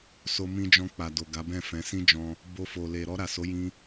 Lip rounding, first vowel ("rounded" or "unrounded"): rounded